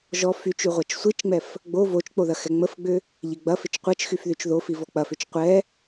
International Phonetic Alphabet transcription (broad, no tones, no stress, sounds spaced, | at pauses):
ʒ ɔ f y t͡ʃ y ʁʷ a t͡ʃ sʷ i t͡ʃ ŋ͡m ɛ f | ɡ͡b o v o t͡ʃ k͡p o ð ɐ x ɛ ŋ͡m ə f ɡ͡b ʏ | ʎ ɪ ɡ͡b ɐ f ɪ t͡ʃ qʷ ɐ t͡ʃ x y f ð y t͡ʃ ð o f i v ɔ k͡p ɐ f ʏ t͡ʃ qʷ ɛ